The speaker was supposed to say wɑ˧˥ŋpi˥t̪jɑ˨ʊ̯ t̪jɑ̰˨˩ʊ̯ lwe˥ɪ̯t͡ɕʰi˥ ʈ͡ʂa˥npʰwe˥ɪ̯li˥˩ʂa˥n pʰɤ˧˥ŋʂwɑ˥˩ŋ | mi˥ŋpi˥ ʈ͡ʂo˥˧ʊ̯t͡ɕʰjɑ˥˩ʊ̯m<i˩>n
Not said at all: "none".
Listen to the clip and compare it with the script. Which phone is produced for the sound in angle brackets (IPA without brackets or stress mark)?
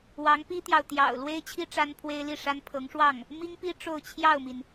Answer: i˩